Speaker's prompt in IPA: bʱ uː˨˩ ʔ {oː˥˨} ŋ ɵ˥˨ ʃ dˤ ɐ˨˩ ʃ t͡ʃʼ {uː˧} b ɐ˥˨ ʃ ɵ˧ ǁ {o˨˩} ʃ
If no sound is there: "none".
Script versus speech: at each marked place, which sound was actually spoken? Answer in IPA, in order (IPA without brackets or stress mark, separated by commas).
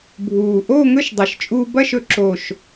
oː˥˨, uː˧, o˨˩